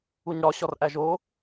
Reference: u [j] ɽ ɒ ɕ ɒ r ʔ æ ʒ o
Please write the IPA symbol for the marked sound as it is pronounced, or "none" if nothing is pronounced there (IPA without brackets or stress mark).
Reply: ɲ